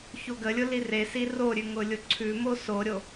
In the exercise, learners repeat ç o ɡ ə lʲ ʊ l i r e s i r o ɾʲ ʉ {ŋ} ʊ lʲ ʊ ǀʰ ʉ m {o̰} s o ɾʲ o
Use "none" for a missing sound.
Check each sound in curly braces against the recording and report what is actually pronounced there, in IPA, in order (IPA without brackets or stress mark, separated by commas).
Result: ŋ, o